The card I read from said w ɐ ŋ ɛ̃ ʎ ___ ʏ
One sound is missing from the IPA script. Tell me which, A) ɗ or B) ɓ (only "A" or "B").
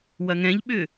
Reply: B